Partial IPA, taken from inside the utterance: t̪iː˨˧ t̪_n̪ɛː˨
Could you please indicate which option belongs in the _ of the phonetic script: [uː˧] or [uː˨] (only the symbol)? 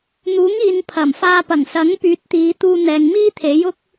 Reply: uː˧